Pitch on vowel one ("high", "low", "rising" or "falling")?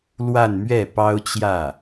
falling